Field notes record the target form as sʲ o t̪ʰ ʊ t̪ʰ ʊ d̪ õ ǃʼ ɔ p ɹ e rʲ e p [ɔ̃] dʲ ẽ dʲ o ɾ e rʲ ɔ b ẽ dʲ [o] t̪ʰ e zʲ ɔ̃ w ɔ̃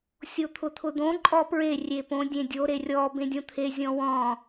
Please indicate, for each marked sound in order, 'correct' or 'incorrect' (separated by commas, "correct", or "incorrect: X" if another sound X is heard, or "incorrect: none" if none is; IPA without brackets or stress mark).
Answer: incorrect: õ, incorrect: õ